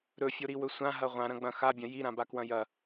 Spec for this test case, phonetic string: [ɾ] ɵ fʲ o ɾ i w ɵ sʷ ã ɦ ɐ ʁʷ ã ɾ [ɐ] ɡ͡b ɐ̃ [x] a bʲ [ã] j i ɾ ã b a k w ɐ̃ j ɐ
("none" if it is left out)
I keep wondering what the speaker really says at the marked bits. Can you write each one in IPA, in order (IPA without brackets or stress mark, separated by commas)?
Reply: ɾ, ɐ̃, x, ɐ̃